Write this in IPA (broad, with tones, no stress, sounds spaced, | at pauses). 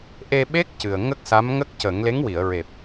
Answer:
ʔ e˧ ɓ e˦˥ k̚ c ɨ˨˩ ə̯ ŋ ə˦˥ k̚ s a˧˥ m ŋ ə˦˥ k̚ c ə˨˩˦ ŋ l e˧˥ ŋ w i˨˩˨ ə̯ ɹ e˨˩ p̚